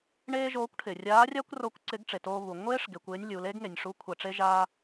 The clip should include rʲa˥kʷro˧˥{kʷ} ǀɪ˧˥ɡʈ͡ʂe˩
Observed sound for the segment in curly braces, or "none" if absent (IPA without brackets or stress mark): kʷ